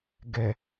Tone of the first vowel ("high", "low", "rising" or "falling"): low